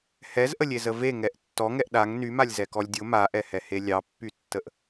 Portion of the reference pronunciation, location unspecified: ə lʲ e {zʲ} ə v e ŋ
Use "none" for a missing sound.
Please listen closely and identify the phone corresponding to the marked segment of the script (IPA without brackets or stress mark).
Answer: z